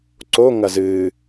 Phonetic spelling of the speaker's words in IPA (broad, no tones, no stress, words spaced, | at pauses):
ǀo ŋɐzɨː